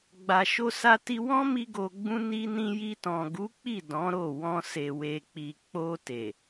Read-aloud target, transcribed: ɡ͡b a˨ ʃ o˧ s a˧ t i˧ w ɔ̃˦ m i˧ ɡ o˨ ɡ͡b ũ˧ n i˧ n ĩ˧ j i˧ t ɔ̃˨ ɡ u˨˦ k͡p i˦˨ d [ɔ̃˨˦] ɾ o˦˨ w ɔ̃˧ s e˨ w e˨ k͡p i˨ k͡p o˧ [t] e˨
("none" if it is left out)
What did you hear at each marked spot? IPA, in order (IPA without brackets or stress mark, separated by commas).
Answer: ɔ̃˨˦, t